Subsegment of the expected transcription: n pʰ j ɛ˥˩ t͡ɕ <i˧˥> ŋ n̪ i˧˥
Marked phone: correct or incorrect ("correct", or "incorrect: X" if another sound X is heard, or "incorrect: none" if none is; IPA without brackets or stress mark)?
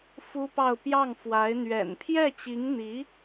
correct